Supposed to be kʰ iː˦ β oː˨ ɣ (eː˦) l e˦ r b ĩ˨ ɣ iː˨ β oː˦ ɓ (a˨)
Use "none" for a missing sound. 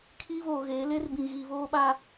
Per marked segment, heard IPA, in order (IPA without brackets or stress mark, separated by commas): eː˨˦, a˦